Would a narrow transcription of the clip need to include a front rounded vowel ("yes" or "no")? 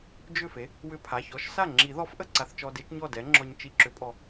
yes